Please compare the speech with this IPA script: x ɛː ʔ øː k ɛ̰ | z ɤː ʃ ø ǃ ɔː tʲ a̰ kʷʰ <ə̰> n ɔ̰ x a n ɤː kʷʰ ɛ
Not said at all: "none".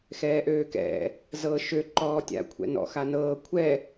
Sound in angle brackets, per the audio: ɛ̰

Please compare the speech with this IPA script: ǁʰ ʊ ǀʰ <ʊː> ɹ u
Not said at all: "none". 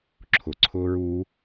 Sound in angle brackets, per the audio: ʊː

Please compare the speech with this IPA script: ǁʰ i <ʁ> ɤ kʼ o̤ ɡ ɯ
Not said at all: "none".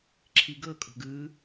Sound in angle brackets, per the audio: ɡ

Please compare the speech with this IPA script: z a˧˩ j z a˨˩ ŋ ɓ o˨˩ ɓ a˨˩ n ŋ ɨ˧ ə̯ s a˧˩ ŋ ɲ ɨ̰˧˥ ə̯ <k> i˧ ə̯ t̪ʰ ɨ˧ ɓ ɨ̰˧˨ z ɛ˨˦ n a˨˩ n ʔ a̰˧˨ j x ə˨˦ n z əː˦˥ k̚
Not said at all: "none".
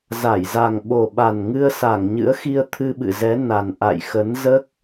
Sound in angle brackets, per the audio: x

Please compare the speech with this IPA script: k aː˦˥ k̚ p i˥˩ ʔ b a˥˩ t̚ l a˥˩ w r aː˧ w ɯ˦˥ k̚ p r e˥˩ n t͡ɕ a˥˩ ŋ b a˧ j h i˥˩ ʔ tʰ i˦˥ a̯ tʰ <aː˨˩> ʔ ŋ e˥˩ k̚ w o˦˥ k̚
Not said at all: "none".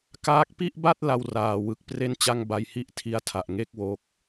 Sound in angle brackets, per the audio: a˨˩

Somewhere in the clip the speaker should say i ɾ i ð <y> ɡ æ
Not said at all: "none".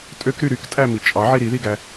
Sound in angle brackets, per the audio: i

